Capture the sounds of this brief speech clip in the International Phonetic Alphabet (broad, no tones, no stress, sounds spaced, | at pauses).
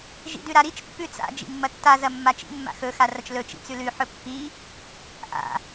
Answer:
ʒ ḭ d ʉ ɾ a ɾ i t͡ʃ pː ʉ t͡s a̰ d͡ʒ ḭ mː ɐ tː a z ɐ mː a t͡ʃ ḭ mː a̰ x ɵ x a r ɐ t͡ʃ l ɵ t͡ʃ ḭ t͡s ʉ l ʉ ħ ɵ pː i | ʔ a̰